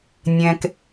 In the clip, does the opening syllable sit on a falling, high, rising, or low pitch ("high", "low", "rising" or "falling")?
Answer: low